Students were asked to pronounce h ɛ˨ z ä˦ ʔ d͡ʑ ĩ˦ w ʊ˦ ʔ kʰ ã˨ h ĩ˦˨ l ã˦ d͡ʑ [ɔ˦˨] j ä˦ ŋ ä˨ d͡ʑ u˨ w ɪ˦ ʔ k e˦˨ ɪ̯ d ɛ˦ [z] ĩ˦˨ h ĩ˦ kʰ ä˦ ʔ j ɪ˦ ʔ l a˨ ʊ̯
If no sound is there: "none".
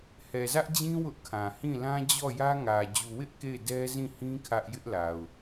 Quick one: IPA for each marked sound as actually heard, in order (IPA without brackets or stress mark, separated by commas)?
ɔ˦˨, z